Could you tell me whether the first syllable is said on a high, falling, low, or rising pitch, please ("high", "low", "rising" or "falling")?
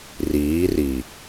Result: rising